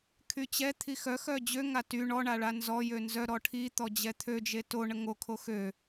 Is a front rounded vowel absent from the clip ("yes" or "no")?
no